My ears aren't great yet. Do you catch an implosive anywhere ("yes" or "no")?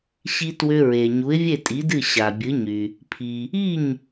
no